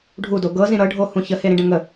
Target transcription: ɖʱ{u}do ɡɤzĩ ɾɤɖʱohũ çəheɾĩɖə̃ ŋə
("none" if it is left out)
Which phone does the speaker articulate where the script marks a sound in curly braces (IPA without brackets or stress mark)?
u